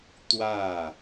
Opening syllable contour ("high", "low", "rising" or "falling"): falling